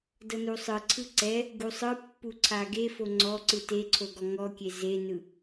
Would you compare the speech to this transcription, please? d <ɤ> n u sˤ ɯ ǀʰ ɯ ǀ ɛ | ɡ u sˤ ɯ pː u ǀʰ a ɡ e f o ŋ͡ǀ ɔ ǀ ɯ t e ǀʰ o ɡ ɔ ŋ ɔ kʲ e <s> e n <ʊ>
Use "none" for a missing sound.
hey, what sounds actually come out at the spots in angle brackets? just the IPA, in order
ɤ, z, ɯ

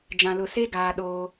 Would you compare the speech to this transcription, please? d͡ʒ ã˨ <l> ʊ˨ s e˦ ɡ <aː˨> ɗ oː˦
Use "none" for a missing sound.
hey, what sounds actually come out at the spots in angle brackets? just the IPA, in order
l, aː˨

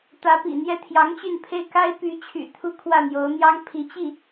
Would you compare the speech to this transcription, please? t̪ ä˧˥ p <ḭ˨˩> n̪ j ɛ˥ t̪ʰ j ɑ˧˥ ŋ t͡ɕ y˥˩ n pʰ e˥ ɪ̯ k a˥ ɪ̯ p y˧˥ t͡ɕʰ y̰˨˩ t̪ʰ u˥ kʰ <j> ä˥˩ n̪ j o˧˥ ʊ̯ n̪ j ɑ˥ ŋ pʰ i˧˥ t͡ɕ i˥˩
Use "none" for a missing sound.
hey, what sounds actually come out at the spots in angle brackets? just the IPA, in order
ḭ˨˩, w

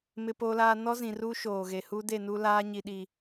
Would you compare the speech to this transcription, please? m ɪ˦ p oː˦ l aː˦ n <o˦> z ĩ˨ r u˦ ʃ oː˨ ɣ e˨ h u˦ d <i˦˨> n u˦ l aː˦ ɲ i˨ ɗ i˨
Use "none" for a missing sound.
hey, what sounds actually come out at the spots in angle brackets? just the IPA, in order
ɔ˦, e˦˨

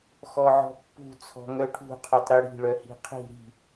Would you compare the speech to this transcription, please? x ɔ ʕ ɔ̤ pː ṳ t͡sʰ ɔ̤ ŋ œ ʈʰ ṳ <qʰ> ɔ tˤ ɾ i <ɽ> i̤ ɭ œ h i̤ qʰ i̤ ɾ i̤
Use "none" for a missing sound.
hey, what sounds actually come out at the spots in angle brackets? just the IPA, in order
qʰ, ɽ

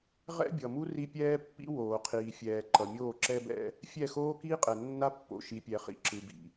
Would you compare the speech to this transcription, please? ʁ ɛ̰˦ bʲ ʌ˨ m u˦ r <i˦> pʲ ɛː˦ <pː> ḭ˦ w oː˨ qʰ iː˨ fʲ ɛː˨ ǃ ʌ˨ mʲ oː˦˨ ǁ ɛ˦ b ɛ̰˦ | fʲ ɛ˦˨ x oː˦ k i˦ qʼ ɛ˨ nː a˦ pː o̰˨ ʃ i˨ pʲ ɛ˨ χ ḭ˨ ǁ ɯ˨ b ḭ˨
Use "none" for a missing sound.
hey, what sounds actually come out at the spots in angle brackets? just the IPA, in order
i˦, pː

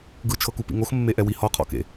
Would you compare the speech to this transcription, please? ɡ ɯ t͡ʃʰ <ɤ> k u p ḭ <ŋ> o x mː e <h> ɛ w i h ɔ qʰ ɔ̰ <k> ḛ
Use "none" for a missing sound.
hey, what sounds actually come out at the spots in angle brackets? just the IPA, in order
ɤ, ŋ, ʔ, k

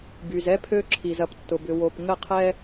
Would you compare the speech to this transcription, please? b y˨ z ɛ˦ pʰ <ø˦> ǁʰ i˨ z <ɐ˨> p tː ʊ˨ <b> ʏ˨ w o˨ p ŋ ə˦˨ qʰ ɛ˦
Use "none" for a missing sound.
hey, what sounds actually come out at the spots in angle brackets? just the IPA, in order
ø˦, ɐ˨, b

